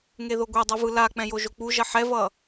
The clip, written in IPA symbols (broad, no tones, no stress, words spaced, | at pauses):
ŋeðoɡʷedˤi vɯlak͡pɛ̃ joʒok͡puʒʌ ħɛvʌ